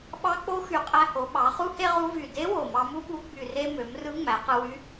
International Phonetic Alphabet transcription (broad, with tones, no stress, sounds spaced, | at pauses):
ɓ ɑ˧˥ k͡p o˧˥ x y˨˩ qʼ æ˧ h o˩˧ ɓ ɑ˩˧ χ u˥ h e˥ ʁ u˧˥ v y˨˩ d e˧˥ w o˨˩ m ɑ˧ m u˥ ɓ u˧˥ ɡ͡b y˨˩ r e˧ m ø˩˧ m r ɯ˧˥ ŋ͡m æ˩˧ q ɯ˧ w y˧˥